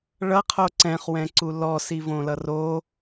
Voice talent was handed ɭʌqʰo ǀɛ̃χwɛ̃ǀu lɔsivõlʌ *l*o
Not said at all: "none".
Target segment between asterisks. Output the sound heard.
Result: r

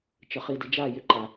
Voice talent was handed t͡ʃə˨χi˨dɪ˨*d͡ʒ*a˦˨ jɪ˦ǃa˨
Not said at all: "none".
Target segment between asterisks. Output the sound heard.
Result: d͡ʒ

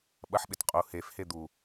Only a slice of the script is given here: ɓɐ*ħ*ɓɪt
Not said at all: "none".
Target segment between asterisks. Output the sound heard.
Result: ħ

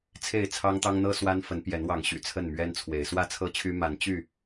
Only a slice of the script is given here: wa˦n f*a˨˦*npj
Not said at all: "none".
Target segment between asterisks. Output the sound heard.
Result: ə˨˦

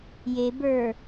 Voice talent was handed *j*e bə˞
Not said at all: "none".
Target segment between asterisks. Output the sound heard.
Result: j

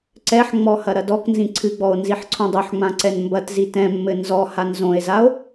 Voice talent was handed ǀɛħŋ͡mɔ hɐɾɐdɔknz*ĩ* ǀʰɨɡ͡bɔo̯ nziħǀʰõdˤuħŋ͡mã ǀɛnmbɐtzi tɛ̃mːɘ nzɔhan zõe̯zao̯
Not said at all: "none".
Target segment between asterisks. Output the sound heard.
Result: ĩ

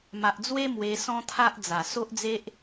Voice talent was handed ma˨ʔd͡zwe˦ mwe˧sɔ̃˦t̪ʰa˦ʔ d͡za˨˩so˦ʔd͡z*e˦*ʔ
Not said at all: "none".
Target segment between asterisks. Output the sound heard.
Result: e˦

